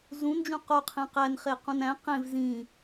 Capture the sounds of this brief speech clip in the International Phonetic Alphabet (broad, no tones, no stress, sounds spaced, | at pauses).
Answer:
z ũ n d͡ʒ ũ q o qʰ ẽ q æ n χ e q ũ n æ̃ q ẽ v z ĩ